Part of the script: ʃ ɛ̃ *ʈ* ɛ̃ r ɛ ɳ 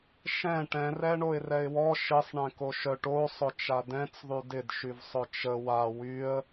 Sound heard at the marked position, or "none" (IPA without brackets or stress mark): ʈ